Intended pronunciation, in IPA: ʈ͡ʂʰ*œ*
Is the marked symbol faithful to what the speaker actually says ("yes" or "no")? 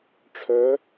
yes